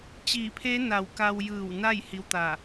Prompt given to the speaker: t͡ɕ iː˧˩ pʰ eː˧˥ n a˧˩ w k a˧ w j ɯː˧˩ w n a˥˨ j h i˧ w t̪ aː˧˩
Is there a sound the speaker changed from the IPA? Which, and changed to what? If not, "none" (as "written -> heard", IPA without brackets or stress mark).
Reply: none